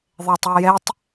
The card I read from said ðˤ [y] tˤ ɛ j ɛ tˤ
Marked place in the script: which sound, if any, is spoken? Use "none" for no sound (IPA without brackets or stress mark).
e